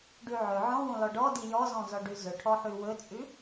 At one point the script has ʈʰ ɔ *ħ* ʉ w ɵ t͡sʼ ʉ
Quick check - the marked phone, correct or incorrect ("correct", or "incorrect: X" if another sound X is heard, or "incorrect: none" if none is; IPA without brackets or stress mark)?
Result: correct